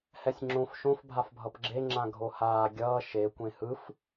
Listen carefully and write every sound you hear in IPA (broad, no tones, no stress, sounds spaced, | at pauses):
h ɛ sʲ ŋ͡ǁ õ f ʃ õ f bʱ a f bʱ ʌ p ɡ͡ǁ e ŋ͡ǁ ã ɡʱ o h aː ɡʲ ʌː ʃ e kʷ ẽ h ɯ f